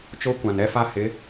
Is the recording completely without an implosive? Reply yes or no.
yes